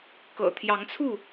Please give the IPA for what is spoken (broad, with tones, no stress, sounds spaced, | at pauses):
k ɤ̰˨˩ t̪ʰ j ɑ˨˦ ŋ t͡sʰ u˥˨